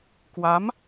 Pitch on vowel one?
rising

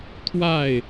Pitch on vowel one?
falling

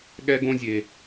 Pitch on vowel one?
high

